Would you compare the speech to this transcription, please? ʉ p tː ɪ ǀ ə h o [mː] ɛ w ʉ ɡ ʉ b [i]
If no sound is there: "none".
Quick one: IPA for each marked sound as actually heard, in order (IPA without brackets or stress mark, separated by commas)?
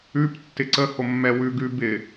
mː, ɪ